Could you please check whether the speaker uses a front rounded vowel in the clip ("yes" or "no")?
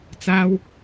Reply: no